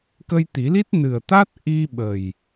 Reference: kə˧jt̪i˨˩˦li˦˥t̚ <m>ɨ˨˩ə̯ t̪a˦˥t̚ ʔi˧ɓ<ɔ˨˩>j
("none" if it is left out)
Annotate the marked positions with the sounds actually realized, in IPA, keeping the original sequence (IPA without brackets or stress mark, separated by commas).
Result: n, ə˨˩